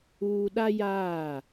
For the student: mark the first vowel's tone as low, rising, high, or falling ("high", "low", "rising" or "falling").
high